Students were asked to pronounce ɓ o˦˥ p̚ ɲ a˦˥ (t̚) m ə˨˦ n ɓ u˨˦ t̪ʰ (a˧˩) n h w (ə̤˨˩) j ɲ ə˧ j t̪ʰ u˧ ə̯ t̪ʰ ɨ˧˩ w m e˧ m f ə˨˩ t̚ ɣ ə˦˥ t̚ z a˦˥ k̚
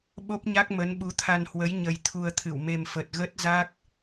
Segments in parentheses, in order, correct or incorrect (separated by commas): incorrect, incorrect, incorrect